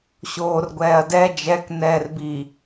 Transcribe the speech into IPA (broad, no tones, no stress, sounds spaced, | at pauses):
ɕ oː r ɡʷ ɛː ɐ̯ d ɛ d͡ʒ ɛ k n ɛː r b i